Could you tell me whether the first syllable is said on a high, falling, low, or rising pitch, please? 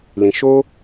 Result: low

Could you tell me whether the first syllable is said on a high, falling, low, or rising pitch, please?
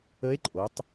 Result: rising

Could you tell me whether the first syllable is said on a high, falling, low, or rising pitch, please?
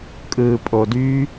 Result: low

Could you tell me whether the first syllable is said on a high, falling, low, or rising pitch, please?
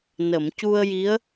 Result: low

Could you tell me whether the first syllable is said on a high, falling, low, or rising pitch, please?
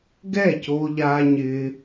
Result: falling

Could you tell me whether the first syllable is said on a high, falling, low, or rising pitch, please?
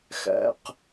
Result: high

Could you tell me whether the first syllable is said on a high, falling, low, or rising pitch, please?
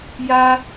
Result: high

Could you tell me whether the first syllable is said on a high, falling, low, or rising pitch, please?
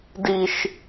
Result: high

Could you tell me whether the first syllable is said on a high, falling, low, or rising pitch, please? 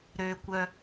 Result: low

